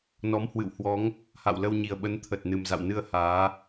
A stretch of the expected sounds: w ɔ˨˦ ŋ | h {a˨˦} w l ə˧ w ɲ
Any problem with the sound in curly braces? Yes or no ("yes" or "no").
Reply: yes